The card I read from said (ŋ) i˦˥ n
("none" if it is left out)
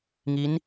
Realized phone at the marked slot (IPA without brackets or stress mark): ŋ